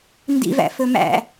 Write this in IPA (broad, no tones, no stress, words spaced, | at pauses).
ndḭvæ̰ fɵmæ̰